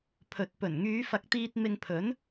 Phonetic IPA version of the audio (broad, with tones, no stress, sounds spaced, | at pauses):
pʰ ɵ˨˥ t̚ p ɵ˨˩ n ŋ yː˨˧ f ɐ˨ k̚ t̪ iː˧ t̚ m ɪ˧ ŋ pʰ ɵ˨˥ n